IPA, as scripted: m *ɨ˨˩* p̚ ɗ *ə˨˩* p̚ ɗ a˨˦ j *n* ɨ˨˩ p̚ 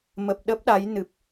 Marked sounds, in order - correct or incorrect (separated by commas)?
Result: incorrect, incorrect, correct